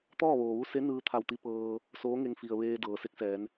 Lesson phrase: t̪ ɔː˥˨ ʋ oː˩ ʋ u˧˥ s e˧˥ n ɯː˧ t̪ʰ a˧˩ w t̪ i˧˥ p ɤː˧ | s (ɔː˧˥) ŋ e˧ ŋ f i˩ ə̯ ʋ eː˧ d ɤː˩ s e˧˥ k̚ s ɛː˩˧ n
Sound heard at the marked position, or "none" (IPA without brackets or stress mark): oː˧˥